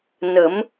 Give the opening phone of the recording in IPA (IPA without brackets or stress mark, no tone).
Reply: n